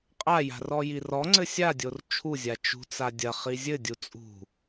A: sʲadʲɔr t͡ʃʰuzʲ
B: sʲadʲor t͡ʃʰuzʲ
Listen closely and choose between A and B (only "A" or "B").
B